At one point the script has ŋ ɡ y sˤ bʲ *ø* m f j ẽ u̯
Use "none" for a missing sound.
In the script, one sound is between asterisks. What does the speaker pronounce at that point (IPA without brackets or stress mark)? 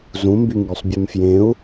ø